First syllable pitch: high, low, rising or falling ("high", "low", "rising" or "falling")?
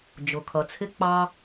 low